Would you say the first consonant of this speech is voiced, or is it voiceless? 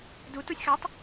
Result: voiced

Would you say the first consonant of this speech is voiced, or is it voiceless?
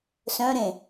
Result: voiceless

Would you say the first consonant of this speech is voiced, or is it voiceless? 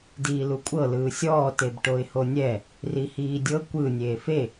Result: voiced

